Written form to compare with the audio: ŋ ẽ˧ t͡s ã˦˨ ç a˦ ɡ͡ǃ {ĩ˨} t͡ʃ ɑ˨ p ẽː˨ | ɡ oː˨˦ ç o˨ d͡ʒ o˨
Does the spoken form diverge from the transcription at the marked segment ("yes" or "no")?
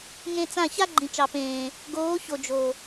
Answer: no